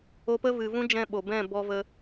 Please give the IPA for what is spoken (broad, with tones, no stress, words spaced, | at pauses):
o˧pə˦ vɨ˨vũ˦d͡ʒɛ̃˧ ɓo˨bɛ̃˦˨ bɔ˧ və˧